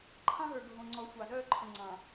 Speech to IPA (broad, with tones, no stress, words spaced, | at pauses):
ǃʰɑ̃˦ɦə˞˨ɡʱõ˨ ŋ͡ǀɔ˨˦xʷɑ˨zœː˦ ǃʰə̃˨ŋ͡ǀɑ̃˨